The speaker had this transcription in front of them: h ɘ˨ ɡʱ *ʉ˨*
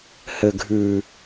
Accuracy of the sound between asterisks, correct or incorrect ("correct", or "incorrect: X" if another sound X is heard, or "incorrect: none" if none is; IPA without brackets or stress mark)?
correct